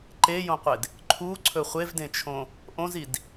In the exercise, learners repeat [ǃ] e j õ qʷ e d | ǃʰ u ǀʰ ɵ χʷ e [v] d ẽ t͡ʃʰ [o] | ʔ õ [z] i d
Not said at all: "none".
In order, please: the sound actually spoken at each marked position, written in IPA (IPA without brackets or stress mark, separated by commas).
ǃ, v, õ, z